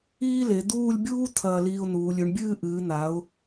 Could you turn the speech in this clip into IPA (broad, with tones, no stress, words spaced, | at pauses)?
iː˥le˩˧ d̪uː˥˧lʲbʲuː˥ t̪ʰɐː˧ liː˧ʊ̯n̪uː˩˧lʲʉ˩˧ɳbʲɨː˥˧ ʔɨː˩˧ n̪a˩˧ʊ̯